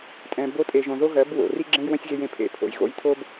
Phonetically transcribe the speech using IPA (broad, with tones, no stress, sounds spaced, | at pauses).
tʼ ɛ̃˨ b o˧ tʼ e˨ ʒ õ˨ ð o˦ ɣ ɜ˨˦ b w o̰˨ r i˦ ɡ͡ǁ ẽ˦ j w ə̃˦ sʲ ɣ e˧ j ẽ˨ pʰ ḛ˨ pʰ o̰˨ j ɣ o̰˧ j tʰ o˦ b